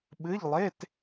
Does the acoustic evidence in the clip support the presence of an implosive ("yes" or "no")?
yes